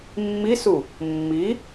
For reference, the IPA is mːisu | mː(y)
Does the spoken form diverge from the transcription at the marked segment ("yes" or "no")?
yes